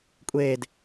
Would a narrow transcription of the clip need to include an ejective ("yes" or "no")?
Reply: yes